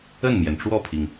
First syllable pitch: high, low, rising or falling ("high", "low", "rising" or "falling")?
falling